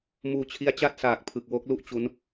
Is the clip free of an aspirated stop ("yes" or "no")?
no